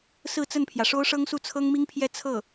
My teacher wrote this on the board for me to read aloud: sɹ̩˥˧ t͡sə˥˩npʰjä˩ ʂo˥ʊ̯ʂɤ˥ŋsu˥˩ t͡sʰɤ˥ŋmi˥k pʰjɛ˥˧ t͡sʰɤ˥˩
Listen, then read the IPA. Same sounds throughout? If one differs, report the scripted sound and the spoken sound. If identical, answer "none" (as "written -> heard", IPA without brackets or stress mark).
k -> ŋ